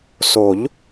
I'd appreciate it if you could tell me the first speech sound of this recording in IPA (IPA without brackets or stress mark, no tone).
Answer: s